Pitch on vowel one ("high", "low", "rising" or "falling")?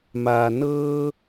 low